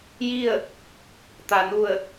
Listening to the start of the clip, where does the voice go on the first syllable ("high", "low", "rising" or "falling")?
falling